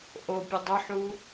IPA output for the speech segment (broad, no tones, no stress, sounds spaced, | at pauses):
ʔ o pʲ ə dˤ ʏ ħ u